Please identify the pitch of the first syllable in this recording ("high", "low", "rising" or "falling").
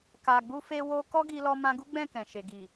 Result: low